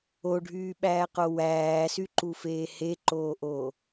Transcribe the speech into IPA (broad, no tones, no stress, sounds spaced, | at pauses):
o ɖʱ yː ɓ æː q o w æː s y ǃ u f eː h e ǃ oː ʔ oː